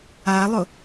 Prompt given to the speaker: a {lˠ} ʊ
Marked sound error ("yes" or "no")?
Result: no